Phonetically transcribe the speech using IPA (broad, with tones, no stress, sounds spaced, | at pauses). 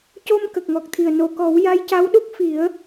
c o˧ m k ə˨˩ k̚ ŋ ɔ˨˩ k̚ t̪ʰ i˨˩ ə̯ n o˨˩˨ k ɔ˨˩˦ w j a˧˥ j c a˧˥ w ɗ u˦˥ k̚ f i˨˩˦ ə̯